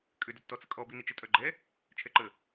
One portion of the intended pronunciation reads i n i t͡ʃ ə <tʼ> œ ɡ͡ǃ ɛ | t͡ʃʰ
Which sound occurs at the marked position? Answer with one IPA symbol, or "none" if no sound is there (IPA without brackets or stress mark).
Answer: tʼ